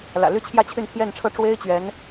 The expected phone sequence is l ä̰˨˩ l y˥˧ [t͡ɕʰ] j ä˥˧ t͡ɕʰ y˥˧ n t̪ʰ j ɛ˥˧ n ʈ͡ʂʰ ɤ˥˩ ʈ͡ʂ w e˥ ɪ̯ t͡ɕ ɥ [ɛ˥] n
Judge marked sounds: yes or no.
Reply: yes, no

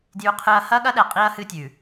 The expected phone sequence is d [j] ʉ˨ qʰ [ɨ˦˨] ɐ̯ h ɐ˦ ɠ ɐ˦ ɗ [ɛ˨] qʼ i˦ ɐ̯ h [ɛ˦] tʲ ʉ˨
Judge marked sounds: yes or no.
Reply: yes, no, yes, no

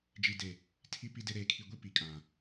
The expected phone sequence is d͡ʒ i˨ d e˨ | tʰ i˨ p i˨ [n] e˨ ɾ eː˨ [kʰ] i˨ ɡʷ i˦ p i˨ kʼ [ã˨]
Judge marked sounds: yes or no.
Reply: no, yes, yes

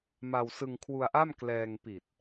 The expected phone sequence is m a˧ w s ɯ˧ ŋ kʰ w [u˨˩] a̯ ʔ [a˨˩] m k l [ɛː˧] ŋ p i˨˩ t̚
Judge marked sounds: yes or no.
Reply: no, no, yes

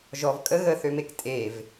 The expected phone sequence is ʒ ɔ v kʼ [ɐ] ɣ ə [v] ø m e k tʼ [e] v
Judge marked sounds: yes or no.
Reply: no, no, yes

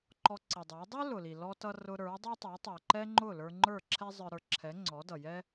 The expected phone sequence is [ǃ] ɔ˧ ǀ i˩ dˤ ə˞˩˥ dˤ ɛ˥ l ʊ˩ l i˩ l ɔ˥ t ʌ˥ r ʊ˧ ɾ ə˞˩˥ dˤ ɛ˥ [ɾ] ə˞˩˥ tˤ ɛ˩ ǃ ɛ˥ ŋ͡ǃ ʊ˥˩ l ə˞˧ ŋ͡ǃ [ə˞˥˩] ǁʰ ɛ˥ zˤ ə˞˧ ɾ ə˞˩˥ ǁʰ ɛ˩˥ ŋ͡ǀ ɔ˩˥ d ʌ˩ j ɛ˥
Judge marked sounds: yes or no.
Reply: yes, no, yes

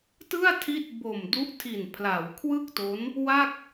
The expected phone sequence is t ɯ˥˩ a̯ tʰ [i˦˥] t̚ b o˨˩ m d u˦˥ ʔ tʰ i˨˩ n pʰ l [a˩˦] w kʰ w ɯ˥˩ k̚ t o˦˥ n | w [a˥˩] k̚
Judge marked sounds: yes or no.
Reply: no, yes, yes

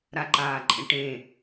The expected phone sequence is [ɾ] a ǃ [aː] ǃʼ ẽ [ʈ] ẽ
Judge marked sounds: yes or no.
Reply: yes, yes, yes

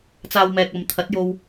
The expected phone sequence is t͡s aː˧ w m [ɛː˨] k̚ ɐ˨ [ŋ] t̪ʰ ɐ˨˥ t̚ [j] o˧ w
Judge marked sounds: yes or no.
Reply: yes, no, yes

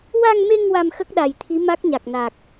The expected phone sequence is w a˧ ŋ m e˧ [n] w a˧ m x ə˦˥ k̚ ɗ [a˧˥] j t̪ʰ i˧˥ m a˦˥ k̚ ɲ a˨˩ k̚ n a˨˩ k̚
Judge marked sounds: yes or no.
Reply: no, no

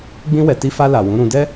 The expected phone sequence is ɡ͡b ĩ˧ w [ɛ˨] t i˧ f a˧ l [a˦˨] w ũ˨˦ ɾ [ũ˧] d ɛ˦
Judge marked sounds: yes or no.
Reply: yes, no, yes

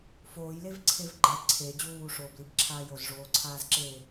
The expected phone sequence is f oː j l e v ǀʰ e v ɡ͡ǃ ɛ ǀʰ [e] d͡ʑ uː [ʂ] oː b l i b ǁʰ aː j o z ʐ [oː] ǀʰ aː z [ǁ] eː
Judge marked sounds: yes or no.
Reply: yes, yes, yes, yes

